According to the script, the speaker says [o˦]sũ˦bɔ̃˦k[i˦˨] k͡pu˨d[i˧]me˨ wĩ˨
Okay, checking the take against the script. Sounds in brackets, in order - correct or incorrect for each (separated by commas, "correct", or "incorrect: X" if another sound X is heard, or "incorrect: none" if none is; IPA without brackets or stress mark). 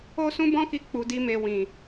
correct, incorrect: i˧, correct